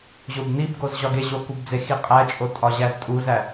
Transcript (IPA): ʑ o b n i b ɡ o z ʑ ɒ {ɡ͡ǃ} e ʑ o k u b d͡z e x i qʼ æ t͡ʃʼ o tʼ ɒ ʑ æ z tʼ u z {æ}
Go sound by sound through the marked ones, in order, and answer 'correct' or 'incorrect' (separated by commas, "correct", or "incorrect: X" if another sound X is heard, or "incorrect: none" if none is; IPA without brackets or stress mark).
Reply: incorrect: ɡ, correct